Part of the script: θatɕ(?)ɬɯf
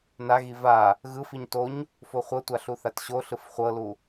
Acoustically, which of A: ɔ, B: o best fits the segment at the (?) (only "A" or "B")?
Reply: B